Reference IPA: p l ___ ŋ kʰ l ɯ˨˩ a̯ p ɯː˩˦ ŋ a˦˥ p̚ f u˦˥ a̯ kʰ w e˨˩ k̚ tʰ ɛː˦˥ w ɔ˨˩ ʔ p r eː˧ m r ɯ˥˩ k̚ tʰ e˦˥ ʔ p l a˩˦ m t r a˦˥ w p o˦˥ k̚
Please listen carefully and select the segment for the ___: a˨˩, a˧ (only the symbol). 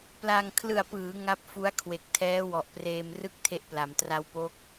a˧